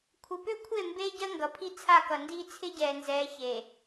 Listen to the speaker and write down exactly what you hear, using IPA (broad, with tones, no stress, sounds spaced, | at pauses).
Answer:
kʷʰ ɪ˨ p ø˦ kʷʰ e˦˨ m b eː˦ ɟ ɜ˦ ŋ ɡ ʌ˨ pʰ i˦ t͡sʰ a˦˨ k ʌ˨ n d iː˦ t͡sʰ ɪ˦ ɟ ɛː˨ n z ɛː˨˦ ç e˨